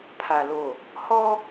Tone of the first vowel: low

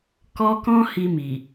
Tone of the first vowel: high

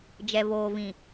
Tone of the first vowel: low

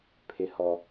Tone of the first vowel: high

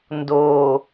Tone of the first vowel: low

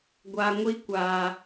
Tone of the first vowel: low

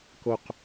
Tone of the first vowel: low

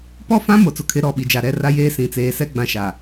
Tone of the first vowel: falling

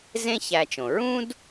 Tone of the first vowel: high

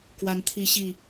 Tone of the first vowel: rising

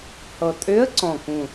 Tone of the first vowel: low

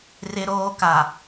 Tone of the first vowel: high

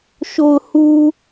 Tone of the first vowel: low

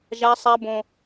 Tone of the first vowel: high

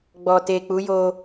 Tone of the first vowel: low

